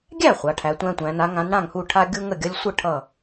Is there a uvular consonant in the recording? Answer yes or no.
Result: yes